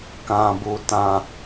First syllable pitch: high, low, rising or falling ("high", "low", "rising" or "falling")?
low